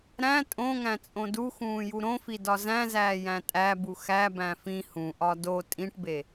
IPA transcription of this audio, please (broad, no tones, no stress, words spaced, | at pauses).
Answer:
ɾæ̃ tʼõŋæ̃ t͡sʼõduxũː juɾõfi dɒzæ̃zæː jæ̃tʼæbu xæbæ̃ fĩ hũʔɒ do tʼĩʈbe